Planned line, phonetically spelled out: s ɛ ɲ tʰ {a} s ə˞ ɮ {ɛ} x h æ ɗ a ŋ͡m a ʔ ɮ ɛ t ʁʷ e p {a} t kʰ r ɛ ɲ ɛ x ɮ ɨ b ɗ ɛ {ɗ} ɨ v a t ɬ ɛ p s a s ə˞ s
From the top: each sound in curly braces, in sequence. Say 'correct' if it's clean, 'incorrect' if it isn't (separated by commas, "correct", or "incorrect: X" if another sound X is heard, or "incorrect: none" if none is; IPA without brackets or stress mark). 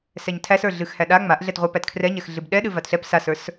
incorrect: æ, incorrect: ɨ, incorrect: æ, correct